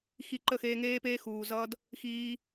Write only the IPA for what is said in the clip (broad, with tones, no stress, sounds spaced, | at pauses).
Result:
x i˧ ǃ ə˦˨ x eː˧ ŋ eː˦ p eː˦ x uː˨ z ʌ˧ d | x iː˦